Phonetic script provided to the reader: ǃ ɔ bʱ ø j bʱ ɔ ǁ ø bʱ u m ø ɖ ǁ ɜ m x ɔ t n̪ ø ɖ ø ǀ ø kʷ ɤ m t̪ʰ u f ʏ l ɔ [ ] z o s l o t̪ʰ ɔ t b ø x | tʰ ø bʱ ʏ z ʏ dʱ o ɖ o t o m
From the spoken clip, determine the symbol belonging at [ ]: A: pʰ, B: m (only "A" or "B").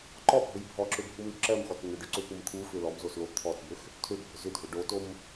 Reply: B